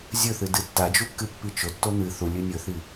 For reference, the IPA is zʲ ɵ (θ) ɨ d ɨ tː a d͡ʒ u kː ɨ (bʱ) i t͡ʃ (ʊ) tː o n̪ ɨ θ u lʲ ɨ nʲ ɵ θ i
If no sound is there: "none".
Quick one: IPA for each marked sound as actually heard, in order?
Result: θ, pː, ɵ

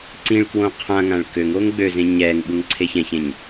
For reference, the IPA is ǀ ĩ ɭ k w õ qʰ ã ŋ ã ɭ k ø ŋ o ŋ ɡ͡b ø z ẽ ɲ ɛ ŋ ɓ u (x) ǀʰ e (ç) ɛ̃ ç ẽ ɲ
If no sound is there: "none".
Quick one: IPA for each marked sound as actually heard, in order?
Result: ŋ, ç

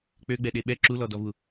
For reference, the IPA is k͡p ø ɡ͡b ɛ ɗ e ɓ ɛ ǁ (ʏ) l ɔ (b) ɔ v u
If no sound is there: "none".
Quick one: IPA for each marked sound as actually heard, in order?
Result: u, d

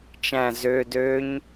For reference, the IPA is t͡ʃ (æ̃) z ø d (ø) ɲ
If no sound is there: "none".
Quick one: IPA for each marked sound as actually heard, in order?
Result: æ̃, ø

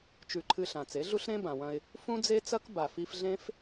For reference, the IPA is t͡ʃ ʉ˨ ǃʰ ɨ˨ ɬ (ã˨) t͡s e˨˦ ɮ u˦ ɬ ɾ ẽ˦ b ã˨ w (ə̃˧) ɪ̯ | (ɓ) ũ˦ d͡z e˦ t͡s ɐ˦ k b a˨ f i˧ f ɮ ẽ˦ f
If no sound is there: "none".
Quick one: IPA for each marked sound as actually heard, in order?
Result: ã˨, ɐ̃˧, f

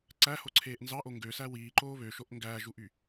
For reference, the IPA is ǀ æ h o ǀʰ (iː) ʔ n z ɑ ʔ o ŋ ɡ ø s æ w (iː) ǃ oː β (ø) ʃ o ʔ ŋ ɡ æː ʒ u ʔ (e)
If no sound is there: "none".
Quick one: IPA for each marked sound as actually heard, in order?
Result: eː, iː, ø, y

